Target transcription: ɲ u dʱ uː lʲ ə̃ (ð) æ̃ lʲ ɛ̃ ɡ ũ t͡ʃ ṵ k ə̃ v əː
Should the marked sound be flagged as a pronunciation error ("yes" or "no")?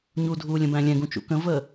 yes